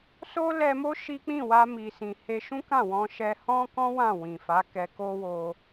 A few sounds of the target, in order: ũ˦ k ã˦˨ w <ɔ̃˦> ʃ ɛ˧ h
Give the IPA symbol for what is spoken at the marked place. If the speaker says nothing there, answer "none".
ɔ̃˧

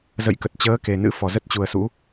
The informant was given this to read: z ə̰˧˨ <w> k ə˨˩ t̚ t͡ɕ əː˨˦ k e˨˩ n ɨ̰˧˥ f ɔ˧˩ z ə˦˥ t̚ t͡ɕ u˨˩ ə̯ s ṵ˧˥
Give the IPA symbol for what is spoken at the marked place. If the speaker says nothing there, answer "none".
j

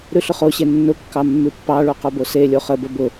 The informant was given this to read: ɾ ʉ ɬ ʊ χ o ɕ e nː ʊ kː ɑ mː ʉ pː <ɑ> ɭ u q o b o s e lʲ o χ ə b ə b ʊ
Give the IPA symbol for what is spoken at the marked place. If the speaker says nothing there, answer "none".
ɑ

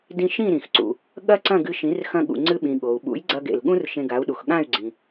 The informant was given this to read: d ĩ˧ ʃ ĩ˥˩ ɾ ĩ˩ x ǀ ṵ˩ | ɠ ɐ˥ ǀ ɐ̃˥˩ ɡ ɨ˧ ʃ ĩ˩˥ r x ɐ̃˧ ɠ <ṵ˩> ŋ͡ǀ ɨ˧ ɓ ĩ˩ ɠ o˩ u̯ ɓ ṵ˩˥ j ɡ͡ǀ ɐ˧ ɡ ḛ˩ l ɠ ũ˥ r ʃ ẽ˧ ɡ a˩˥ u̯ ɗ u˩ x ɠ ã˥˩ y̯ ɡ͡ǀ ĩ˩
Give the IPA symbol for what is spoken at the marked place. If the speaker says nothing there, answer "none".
ṵ˩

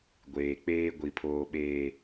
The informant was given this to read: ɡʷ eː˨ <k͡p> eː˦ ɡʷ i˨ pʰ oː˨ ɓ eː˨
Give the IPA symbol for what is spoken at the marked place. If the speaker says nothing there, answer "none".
k͡p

